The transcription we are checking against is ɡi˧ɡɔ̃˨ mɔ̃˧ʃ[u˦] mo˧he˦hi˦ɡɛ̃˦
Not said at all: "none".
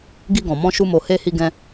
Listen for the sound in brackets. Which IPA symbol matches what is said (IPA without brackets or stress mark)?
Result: u˧